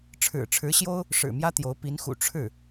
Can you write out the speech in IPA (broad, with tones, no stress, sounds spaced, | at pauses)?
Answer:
ʈ͡ʂʰ ɻ̩˨˩ ʈ͡ʂʰ ɻ̩˧˥ ɕ j o˥ ʊ̯ | ʂ ɻ̩˨˩ m j ä˥ t̪ j o˧˥ ʊ̯ p i˧˥ n x ṵ˨˩ ʈ͡ʂʰ ɻ̩˥˩